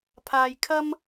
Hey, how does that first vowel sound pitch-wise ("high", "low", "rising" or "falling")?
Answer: low